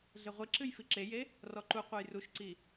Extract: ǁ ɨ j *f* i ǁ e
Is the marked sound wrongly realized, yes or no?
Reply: no